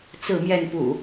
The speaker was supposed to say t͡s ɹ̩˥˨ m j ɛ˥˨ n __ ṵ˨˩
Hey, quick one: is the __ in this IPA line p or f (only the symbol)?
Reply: p